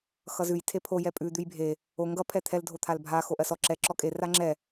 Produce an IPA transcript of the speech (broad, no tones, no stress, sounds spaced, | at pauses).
x ʌ z ʉ j tʰ e pʰ o j ɛ pʼ ʉ d̪ ʉ j bʱ e | o ŋ ɡ ʌ pʰ ɛ t̪ʰ ɛ l dʱ o t̪ʰ a l bʱ a x o ʔ ɜ s ɔ ǁ ɛ ǁ ɔ kʼ e r a ŋ͡ǁ ɛ